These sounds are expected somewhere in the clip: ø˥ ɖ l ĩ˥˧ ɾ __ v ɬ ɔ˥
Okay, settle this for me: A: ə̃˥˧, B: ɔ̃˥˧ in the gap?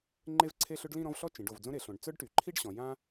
B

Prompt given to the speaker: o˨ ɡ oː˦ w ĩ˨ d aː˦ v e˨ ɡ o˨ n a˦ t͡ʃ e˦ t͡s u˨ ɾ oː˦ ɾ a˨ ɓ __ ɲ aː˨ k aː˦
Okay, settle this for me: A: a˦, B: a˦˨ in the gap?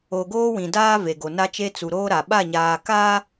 B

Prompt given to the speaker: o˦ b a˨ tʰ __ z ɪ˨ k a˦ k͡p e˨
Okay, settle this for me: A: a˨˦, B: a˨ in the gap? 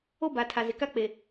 B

